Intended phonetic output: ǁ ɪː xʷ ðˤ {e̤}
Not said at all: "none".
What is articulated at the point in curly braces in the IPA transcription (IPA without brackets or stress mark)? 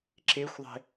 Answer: e̤